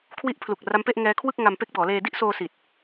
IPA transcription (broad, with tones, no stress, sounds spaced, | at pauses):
kʰ w i˦˥ ʔ pʰ l u˨˩ k̚ r a˦˥ m p e˥˩ ʔ ŋ ɛː˦˥ kʰ w ɯ˥˩ k̚ ŋ a˧ m p e˦˥ k̚ b ɔː˩˦ l eː˧ d i˥˩ ʔ s oː˧ s i˨˩ t̚